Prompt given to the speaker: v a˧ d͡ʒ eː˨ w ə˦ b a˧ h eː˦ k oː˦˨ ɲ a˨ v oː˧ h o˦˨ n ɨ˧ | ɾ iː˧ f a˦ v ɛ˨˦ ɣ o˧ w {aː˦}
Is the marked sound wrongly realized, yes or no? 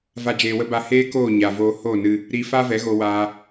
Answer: yes